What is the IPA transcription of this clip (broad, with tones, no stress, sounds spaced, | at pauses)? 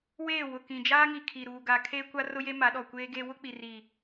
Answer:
w eː˦˨ w ʊ˨ k ĩ˨ d͡ʒ aː˦ ŋ i˨ kʰ i˨ ɾ uː˨ ɡ a˨ kʰ eː˦ kʷ a˦ r ʊ˦ j e˦ m a˨˦ ɗ ɔ˨ kʷ eː˦ ɡ eː˦ w ʊ˦ k͡p i˨ r i˨